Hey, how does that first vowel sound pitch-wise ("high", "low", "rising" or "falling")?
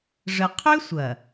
high